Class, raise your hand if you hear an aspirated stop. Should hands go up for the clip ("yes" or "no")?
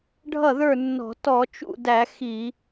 no